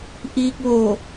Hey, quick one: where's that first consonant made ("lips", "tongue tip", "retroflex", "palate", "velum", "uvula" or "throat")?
throat